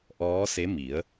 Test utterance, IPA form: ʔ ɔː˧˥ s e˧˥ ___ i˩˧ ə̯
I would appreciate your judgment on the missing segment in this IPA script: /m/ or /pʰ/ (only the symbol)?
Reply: m